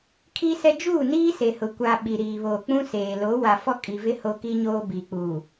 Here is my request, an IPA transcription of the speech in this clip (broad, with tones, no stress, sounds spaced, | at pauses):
kʰ i˦ s ɛ˦ d͡ʒ uː˦˨ n iː˦ s e˨ h ʊ˨ kʷ a˨ ɓ i˨ ɾ iː˨ β oː˨ k͡p ũ˦ s eː˨ l o˨˦ w a˨ f ɔ˦ kʼ i˨ v ɪ˦ h o˦ k i˦ ɲ oː˦ b i˨ k͡p u˨